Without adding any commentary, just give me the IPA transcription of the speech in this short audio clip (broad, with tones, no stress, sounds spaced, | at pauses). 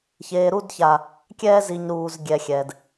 ç eː˨ ɾ u˦˨ d ç a˨ | kʲ ɛː˧ z i˨ ɲ ɾ uː˨ z ɡʲ ɛ˨ xʲ ɛ˨ d